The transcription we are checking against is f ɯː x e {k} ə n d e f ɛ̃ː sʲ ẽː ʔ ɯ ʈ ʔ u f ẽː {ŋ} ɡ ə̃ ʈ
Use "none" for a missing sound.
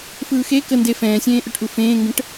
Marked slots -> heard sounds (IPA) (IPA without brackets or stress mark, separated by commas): k, ŋ